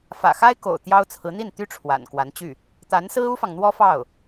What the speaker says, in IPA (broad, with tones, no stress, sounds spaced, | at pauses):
f ä̰˨˩ x a˥ ɪ̯ k o̰˨˩ ʊ̯ t̪ j ɑ˥ ʊ̯ t͡sʰ ɹ̩˧˥ n̪ i˥˩ n t̪ y˥ ʈ͡ʂʰ w a̰˨˩ n k w a˧˥ n t͡ɕ y˥˩ | t̪ a˧˥ n s ɹ̩˥ u˥ f ɑ˨ ŋ n̪ w ɔ˥ f ɑ˥˩ ʊ̯